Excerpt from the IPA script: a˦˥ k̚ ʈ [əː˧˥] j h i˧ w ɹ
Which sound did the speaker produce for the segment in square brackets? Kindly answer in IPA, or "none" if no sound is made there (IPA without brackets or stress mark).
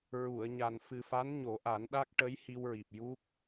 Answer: ə˧˥